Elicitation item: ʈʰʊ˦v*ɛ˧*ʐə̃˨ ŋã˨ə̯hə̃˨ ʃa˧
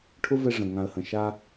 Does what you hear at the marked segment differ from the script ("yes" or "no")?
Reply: no